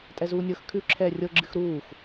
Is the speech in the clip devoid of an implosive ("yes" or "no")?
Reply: yes